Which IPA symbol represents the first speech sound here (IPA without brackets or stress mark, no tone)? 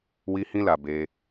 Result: w